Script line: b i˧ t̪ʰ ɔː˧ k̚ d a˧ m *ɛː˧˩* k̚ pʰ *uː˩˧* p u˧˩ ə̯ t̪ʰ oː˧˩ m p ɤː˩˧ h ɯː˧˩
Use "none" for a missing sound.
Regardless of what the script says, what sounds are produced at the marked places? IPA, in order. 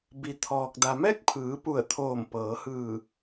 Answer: ɛː˥˨, ɯː˩˧

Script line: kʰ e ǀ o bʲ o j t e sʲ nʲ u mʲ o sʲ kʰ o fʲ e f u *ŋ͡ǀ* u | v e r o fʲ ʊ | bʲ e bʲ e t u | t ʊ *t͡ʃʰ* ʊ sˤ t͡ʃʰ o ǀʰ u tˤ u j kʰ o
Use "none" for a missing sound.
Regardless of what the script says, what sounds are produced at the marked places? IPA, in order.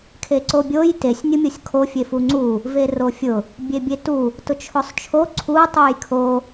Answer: ŋ͡ǀ, t͡ʃʰ

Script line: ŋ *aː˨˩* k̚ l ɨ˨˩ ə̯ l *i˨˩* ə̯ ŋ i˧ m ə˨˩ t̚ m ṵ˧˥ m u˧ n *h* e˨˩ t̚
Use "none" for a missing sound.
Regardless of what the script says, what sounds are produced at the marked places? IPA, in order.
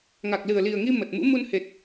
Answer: a˨˩, i˨˩, h

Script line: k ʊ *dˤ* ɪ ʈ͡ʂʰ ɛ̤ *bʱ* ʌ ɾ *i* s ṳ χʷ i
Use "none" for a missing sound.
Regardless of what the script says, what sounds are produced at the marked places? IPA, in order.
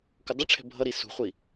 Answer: dˤ, bʱ, i

